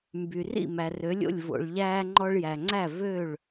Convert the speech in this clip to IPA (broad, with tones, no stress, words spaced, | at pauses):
mby˩ rḭ˥˩ mæ˩rø˩˥lʲo̰˥˩lʲ vo̰˩ɭʎæː˧ŋ͡ǃɔ˧ɭ jæ˩ŋ͡ǀæ˥˩ vø˥˩ɭ